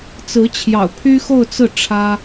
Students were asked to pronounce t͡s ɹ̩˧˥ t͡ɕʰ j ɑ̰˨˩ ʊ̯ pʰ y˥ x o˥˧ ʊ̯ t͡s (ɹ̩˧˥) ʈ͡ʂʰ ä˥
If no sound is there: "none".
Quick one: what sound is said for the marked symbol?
ɹ̩˥˩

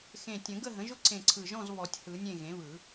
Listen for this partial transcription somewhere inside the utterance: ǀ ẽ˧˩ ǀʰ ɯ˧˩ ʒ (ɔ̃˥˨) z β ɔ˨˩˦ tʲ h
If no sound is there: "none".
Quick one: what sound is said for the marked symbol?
ɔ̃˥˨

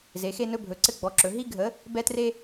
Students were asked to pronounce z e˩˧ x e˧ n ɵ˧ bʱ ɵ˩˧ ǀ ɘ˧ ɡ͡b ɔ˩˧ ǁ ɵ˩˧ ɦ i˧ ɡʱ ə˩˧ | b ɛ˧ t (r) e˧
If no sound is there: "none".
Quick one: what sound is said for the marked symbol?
r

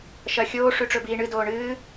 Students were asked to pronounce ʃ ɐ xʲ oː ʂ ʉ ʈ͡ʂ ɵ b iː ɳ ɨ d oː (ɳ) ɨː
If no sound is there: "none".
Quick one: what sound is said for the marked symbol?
ɳ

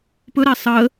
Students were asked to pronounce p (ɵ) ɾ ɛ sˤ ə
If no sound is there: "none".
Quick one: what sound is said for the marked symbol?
ɵ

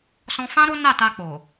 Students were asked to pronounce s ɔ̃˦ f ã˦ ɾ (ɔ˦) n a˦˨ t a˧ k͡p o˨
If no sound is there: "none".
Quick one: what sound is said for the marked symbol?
o˦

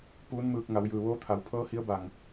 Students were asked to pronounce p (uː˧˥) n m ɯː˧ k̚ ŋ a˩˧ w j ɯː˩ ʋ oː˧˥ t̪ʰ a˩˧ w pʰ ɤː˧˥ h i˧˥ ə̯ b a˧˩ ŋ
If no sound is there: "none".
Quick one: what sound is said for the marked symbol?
uː˧˥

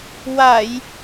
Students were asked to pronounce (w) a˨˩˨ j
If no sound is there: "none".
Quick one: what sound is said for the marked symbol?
w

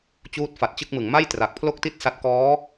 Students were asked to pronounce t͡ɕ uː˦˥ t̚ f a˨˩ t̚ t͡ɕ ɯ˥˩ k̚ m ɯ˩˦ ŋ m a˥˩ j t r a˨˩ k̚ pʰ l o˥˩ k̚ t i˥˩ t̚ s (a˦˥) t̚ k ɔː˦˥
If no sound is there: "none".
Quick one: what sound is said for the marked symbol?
a˦˥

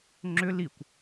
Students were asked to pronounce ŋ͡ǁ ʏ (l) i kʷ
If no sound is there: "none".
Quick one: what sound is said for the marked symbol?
l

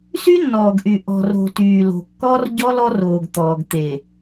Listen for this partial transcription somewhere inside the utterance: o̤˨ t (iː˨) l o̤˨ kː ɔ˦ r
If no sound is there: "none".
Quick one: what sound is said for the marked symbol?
yː˨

